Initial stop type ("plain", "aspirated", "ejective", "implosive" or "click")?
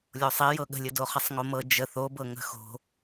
implosive